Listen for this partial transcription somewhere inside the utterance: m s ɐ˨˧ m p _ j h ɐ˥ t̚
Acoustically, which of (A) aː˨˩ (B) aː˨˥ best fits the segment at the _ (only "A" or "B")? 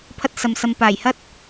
A